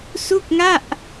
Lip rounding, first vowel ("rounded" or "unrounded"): rounded